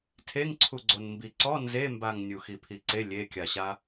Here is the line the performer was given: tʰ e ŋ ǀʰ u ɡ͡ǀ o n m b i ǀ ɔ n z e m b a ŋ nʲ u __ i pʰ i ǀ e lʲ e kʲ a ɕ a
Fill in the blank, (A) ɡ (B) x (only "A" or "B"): B